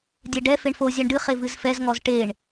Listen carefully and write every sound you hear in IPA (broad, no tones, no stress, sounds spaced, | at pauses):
dʲ ɛ ɖ ɛ f e ɳ f o zʲ æ ɳ ɖ ɨ χ e v ɨ z f ɛ z ŋ ɔ z ʈ e ɳ